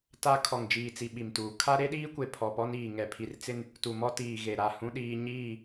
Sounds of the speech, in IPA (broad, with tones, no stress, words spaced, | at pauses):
ta˦ kʰɔ˨ŋd͡ʒiː˨t͡si˨ ɓi˨mtuː˨ kʰa˦ɾe˦ɗiː˦kʷe˨ pʰɔ˨pɔ˦niː˨ ŋɛ˨pʰi˨rt͡sɪ˦n | tu˨mɔ˦ tiː˨ɣe˨ɾa˦˨ hũ˦ɗiː˦ ɲiː˦˨